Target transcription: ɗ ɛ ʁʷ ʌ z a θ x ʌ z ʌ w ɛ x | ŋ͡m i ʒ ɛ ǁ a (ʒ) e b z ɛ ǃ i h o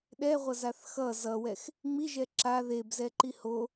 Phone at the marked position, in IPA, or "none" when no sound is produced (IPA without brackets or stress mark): ð